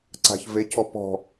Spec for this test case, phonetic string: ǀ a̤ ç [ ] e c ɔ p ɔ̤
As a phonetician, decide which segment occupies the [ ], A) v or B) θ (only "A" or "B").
A